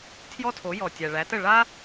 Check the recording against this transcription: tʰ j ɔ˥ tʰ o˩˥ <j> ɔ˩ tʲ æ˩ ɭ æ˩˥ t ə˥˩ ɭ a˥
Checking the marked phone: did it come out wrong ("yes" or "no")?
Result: no